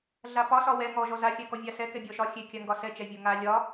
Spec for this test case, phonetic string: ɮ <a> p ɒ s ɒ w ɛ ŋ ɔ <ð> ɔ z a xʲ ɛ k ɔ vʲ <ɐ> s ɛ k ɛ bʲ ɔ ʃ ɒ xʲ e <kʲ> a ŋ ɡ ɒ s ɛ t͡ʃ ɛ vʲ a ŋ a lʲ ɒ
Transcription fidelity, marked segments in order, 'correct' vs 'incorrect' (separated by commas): correct, incorrect, incorrect, correct